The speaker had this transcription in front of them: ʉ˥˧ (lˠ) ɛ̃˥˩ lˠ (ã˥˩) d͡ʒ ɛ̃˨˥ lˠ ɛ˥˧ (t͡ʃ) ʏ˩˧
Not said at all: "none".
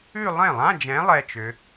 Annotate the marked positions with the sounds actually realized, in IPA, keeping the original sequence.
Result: lˠ, ã˧˥˧, t͡ʃ

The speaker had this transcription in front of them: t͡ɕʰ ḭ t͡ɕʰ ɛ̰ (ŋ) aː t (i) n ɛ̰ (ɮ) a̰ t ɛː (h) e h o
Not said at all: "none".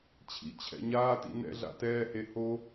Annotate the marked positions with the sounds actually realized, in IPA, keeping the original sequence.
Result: ɲ, ḭ, ɮ, h

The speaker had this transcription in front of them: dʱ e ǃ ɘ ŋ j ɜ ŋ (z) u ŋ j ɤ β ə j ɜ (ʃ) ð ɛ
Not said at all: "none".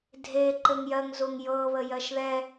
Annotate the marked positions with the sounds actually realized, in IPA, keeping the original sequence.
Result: z, ʃ

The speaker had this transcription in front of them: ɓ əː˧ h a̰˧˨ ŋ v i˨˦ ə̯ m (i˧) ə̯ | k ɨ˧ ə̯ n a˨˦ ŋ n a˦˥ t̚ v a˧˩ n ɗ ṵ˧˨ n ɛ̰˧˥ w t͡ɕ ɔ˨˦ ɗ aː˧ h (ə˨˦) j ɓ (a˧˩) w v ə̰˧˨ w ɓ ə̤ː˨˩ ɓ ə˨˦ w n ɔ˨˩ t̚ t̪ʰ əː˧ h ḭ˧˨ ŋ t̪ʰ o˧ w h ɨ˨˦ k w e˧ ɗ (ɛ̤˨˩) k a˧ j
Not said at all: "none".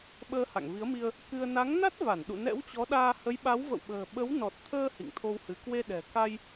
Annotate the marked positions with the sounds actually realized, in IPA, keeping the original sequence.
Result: i˧, ə˨˦, a˨˦, ɛ̤˨˩

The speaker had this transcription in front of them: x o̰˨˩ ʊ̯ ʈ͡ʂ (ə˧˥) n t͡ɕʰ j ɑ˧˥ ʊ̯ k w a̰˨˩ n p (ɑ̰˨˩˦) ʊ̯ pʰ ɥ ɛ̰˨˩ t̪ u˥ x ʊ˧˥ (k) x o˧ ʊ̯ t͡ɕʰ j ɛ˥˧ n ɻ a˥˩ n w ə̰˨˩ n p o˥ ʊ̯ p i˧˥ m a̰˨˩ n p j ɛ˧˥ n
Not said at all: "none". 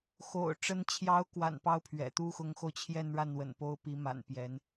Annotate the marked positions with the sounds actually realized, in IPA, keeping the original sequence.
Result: ə˧˥, ɑ˥, ŋ

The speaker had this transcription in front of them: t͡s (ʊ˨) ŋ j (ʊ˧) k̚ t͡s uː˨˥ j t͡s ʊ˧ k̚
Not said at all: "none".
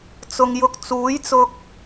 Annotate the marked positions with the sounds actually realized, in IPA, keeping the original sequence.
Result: ʊ˨, ʊ˧

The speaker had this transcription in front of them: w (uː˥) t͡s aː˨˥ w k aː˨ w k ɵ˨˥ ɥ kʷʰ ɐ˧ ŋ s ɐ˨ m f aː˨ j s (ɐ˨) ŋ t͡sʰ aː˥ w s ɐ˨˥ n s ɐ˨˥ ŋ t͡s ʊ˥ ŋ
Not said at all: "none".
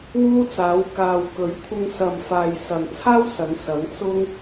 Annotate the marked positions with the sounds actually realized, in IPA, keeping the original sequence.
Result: uː˥, ɐ˨

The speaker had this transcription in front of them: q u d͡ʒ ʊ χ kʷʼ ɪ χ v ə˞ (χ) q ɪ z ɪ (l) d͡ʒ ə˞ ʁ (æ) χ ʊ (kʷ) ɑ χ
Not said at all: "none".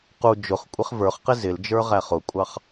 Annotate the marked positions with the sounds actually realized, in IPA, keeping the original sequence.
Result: χ, l, æ, kʷʼ

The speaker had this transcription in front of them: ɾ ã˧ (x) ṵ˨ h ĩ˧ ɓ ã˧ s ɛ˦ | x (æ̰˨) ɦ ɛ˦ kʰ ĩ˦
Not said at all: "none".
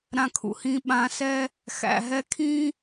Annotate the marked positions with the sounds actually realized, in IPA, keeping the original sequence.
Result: kʰ, æ̰˨

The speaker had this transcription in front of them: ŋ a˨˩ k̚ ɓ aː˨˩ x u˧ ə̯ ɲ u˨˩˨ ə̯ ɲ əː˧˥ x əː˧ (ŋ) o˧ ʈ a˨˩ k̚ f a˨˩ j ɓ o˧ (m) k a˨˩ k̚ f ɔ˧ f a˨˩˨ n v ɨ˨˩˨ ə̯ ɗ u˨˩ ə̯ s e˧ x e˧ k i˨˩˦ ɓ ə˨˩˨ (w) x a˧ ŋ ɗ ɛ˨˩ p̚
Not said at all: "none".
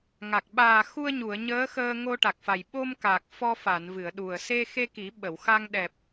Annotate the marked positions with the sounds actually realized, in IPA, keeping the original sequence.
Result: ŋ, m, w

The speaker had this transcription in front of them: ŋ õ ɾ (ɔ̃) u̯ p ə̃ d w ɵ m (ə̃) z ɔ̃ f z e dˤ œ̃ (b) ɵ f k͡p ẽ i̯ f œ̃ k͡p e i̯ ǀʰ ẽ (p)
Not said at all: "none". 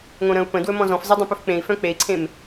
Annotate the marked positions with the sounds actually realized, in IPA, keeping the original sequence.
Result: ə̃, ɔ̃, p, m

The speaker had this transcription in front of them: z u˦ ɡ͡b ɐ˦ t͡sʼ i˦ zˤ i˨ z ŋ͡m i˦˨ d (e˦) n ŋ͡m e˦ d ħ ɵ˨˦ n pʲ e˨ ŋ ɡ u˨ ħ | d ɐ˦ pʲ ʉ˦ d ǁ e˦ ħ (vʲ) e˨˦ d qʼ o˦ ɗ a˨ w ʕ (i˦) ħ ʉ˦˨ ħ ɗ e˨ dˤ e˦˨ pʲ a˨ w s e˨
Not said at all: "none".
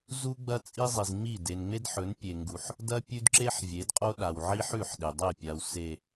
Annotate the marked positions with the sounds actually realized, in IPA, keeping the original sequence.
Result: e˨, vʲ, i˦

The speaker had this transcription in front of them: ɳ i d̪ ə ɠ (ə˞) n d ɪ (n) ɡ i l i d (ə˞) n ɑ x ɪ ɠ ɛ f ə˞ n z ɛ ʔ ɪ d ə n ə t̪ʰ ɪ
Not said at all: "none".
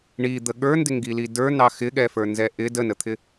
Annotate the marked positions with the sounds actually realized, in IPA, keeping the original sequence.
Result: ə˞, ŋ, ə˞

